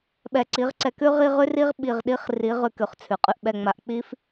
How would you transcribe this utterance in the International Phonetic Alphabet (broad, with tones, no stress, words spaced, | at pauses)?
ɓɛ˧ǀi˨˦ʁǀɛ˧k ʉ˦ ʁi˦ʁʉ˦ri˦ʁ ɓi˨ʁɗi˨˦χ ri˨˦ ʁʉ˧kʉ˨χt͡sʰʉ˨ qʼʉ˨ʔɓɛ˨ŋ͡ma˨ʔ k͡pi˦f